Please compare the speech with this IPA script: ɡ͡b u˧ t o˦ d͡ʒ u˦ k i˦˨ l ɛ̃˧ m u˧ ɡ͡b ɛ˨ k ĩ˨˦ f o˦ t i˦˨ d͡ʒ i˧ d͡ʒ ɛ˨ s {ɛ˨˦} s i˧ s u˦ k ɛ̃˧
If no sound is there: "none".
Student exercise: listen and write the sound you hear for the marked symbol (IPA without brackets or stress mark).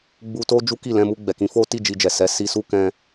ɛ˨˦